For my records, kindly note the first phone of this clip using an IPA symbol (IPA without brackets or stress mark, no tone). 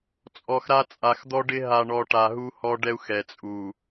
t͡sʼ